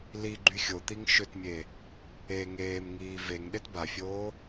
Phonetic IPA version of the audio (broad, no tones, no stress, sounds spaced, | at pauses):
l i ɡ͡ǃ y xʲ o t̪ i ŋ ʃ ʏ t mʲ e | e ŋ eː m ŋ iː v e ŋ ɗ e t b a fʲ oː